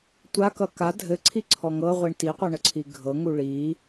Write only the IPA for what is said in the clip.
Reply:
tʷ a k ʌ k a dʱ ɘ ǀʰ i ǀʰ ɔ ŋ ɤ ʁʷ i ɳ t i qʷ ʌ ɳ ə ǀʰ i ɡʱ ɤ ŋ u ɭ i

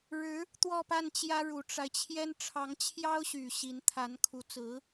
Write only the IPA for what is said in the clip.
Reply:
ɻ ɻ̩˧˥ | t̪ w ɔ˥˧ p a˥˩ n t͡ɕ j ä˥ ɻ u˨˩ ʈ͡ʂ a˦ ɪ̯ t͡ɕʰ j ɛ˥ n ʈ͡ʂʰ ɑ˧˥ ŋ t͡ɕʰ j ɑ˥ ʊ̯ ɕ y˨˩ ɕ i˧˥ n t̪ʰ a˧˥ n kʰ u˧˥ t͡s ɹ̩˧˥

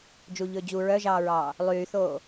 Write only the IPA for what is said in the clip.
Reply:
d͡ʒ u ʎ ɵː d͡ʑ u ɹ œ ʒ ɑː ɹ ɑː | lˠ yː θ oː

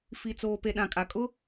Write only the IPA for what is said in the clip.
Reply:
f i˨ t͡s oː˨ p e˨ ɗ ã˨ kʼ a˨ kʼ ʊ˦

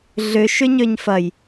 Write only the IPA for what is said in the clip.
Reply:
ɮ ʏ ʃ ʏ ɲ ø ɲ f ɐ j

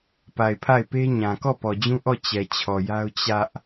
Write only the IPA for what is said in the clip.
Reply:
p a˨ ɪ̯ pʰ a˦˨ ɪ̯ p e˦ ɲ ã˨ k ɔ˦˨ p ɔ˨ d͡ʑ ũ˦ ʔ ɔ˦˨ t͡ɕ ɛ˨ t͡ɕʰ ɔ˨ j a˦ ʊ̯ t͡ɕ ä˦ ʔ

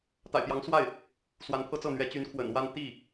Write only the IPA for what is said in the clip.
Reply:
t̪ a̰˨˩ ɪ̯ p j ɑ˧˥ ŋ s w a˥˩ ɪ̯ | s w a˧˥ n pʰ ɤ˥ t͡s ɤ˥˩ n̪ ɥ ɛ˧˥ t͡ɕ y˧˥ n kʰ w ə̰˨˩ n w a˥˧ n t̪ i˥˩

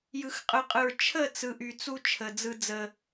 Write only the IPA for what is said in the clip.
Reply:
j ɯ˨ x qʼ ɯ˨ qʼ ɯ˨ ɹ t͡ʃʰ ə˦˨ t͡s ɯ˨ ʔ y˨ t͡s u˦ t͡ʃʰ ə˨ d͡z ɯ˦ d͡z ə˦

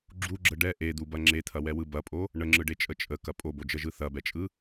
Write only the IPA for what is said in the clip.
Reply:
ɡ͡ǁ u ɡ͡ǁ ə ɖ ɛ ʔ e d̪ u b ɐ ŋ͡ǁ e t̪ʰ ɐ w ɛ w ɯ b ɐ pʼ o | ɳ ə ŋ͡ǁ ɯ ɖ e t͡ʃʼ ə t͡ʃʼ ə k ɐ pʼ o b o d͡ʒ ə ʒ ɯ θ ɐ b ɛ t͡ʃʼ ɯ

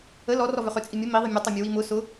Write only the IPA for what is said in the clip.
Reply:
ə l ɔ r ɔ v ʏ χ ʏ t͡sʼ i mʲ ə m i ðˤ i mʲ ɔ tˤ a mʲ ə w i m ʊ s ʊ

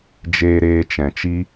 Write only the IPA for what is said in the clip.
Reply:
d͡ʒ eː˧ ɾ eː˧ t͡ʃ ɛ̃˨ t͡ʃ i˦

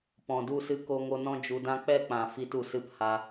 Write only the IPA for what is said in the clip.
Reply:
p ɔ̃˨ d u˦˨ s ɨ˧ k o˧ ŋ o˧ n ɔ̃˦ d͡ʒ u˧ d ã˦ k͡p ɛ˦˨ k͡p ã˨ f i˧ t u˨ s ɨ˧ p h a˧

